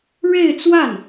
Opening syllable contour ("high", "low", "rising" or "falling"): falling